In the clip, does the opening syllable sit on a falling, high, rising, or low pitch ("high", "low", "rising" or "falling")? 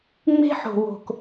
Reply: high